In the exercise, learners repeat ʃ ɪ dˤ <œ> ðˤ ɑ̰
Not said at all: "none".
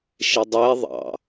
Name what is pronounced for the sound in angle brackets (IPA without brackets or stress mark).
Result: ɛ